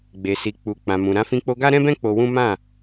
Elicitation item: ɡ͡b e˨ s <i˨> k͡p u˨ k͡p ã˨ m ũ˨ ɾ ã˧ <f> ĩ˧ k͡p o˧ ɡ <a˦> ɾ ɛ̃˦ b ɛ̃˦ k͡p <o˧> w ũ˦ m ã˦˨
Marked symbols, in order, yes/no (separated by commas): yes, yes, yes, yes